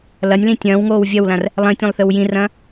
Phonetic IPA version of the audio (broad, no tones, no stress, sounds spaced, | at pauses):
l ɐ nʲ l ĩ tʲ ɐ̃ː w ŋ oː w vʲ ɐ w l ã r | lˠ ĩ tʲ õ lˠ θ ɨ w j ĩ r ɐ̃ː